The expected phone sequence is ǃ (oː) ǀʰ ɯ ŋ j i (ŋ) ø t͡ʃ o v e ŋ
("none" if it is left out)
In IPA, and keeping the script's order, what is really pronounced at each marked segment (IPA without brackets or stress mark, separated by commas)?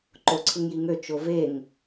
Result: o, ŋ